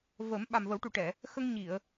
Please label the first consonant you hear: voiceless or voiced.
voiced